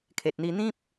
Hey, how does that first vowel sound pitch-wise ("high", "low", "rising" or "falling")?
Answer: low